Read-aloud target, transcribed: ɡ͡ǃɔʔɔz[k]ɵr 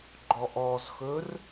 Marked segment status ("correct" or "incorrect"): incorrect